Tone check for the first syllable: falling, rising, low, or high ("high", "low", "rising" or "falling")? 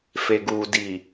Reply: low